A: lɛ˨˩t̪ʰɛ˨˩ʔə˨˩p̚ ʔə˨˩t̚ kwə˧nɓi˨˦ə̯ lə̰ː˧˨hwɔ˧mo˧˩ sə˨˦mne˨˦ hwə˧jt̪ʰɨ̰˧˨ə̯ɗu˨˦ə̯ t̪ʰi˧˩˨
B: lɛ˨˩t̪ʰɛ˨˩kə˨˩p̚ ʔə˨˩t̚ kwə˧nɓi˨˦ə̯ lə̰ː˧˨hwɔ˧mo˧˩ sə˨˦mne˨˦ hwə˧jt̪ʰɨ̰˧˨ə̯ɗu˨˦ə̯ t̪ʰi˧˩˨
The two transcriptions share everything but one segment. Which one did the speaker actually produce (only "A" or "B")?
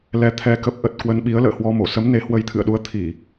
B